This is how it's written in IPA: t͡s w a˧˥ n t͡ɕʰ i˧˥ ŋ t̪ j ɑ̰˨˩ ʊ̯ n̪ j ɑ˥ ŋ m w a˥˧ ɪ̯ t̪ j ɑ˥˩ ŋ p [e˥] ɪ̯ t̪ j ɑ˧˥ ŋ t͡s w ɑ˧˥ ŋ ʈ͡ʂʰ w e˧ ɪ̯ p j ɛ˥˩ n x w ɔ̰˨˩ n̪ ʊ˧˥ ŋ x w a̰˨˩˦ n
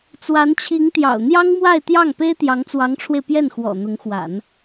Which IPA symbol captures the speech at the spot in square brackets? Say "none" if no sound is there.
e˥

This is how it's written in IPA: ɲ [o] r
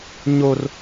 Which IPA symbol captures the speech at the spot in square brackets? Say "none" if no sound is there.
o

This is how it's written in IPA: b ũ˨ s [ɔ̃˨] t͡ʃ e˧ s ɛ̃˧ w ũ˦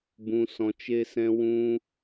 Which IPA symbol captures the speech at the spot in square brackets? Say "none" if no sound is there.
ɔ̃˨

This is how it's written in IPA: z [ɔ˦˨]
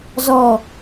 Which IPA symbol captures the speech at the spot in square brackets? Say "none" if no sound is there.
ɔ˦˨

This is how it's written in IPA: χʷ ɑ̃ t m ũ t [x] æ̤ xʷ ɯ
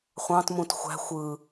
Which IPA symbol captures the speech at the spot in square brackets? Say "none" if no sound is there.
xʷ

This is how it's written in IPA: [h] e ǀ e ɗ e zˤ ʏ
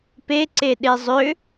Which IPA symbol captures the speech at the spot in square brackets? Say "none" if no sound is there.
p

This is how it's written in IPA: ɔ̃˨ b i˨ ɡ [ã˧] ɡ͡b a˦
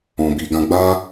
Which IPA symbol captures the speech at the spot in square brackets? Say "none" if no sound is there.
ã˧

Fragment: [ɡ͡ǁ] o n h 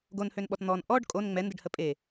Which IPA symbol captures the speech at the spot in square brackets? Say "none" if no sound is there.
ɡ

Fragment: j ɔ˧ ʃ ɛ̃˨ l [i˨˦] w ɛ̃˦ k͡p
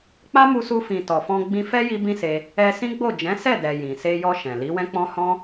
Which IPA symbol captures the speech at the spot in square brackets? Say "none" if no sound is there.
i˨˦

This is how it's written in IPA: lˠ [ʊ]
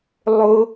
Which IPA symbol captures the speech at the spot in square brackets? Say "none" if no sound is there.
ʊ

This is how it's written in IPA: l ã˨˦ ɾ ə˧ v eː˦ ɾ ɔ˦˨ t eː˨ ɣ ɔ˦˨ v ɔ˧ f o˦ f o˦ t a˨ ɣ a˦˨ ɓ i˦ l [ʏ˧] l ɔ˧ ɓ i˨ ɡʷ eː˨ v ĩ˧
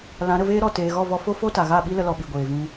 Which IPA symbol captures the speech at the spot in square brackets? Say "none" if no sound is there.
ə˧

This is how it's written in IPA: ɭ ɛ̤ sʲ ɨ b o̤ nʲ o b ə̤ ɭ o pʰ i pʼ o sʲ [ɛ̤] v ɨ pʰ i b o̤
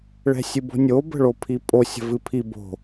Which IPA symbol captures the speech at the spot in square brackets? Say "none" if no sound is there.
ə̤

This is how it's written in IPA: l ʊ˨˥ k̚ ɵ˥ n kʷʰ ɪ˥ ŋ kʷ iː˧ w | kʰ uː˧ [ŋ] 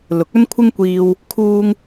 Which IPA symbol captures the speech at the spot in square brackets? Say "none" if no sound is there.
ŋ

